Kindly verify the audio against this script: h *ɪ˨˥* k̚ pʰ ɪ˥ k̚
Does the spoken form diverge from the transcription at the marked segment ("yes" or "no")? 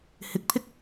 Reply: no